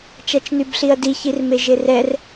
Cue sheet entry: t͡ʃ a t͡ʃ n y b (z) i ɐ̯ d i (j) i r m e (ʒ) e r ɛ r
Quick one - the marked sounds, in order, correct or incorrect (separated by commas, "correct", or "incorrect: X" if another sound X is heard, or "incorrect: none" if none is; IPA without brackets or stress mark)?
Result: incorrect: ɬ, incorrect: ç, correct